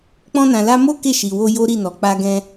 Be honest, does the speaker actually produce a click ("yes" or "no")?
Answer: no